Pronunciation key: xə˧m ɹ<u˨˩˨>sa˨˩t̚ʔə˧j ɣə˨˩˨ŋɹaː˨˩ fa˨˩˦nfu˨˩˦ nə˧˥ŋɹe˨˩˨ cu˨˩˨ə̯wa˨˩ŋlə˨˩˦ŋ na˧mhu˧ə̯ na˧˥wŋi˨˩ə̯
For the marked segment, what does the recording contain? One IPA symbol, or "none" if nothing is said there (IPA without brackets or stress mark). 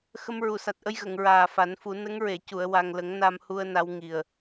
u˨˩˨